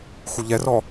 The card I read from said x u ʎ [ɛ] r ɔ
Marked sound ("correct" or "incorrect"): correct